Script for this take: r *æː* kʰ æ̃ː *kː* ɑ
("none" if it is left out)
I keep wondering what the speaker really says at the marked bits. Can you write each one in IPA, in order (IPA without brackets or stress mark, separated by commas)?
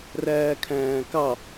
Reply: æː, k